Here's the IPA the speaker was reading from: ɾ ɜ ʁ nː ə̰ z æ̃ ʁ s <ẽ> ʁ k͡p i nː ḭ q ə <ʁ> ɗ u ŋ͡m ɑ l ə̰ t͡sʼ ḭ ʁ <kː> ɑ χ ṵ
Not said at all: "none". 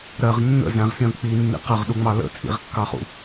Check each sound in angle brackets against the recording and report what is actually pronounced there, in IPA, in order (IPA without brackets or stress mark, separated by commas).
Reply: ĩ, ʁ, kː